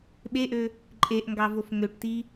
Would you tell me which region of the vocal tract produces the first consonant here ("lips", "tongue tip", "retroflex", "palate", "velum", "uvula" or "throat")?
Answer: lips